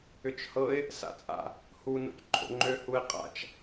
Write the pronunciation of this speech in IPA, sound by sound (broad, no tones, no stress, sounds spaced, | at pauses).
ʏ t͡ʃ h ɤ ɪ̯ | s a̰ t͡sʼ a̰ | h u n o̰ c ǃʰ o̰ ŋ͡ǃ ø h u ɪ̯ qʼ a̰ t͡ʃ